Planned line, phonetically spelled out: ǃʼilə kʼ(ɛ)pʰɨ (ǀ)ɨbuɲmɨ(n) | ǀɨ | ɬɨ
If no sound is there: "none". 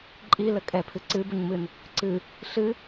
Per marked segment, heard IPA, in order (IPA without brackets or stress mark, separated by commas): ɛ, ǀ, n